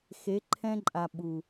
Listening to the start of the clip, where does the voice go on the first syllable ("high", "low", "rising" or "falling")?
rising